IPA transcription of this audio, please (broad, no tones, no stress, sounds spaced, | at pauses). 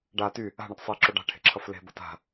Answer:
ɖ a t y | a̤ ɳ ʌ t sˤ e ǁ o ɖ a̤ ʈʰ e̤ ǁʰ ʌ f l e̤ b ʌ t a̤